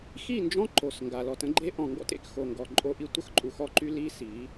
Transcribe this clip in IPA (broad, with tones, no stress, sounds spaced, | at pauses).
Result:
x i˦˨ n d͡ʒ ɔ̃˦ ǃ o˨ s ŋ ɡ a˨ l ɔ˨ t ə̃˦ ɡ͡ǃ e˦ ʔ ɔ̃˨ ŋ ɡ ɔ̰˦ t ḛ˨ k x o˨ ŋ ɡ ɔ˨ ǃʼ o˦ ʔ i˦ tʷ ə˦ x ǃʼ u˨ x ɔ˦ ǃ y˦ l i˦ s i˨˦